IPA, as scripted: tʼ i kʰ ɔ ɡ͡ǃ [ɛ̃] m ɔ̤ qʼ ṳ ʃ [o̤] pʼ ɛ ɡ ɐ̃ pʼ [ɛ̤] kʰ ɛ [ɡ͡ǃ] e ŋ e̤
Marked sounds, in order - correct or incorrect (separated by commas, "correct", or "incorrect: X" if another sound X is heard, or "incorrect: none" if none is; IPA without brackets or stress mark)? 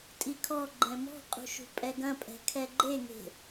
correct, incorrect: ṳ, correct, correct